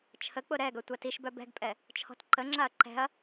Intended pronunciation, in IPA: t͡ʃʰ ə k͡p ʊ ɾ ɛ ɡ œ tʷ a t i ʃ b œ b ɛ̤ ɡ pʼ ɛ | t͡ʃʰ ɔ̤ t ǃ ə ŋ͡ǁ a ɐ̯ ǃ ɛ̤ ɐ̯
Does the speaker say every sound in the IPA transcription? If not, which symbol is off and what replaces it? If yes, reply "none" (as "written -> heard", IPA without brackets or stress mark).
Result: none